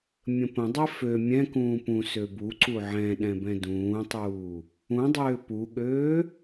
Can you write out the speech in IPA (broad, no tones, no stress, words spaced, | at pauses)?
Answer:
mʲə̃pə̃dˤɛ fø mʲɛ̃kũː pũ søbuǀu ʕɛ̃ɗɛ̃ bɛ̃dũːtˤuː | ũdˤøː puɠøː